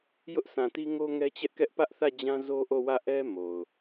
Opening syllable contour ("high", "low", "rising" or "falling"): high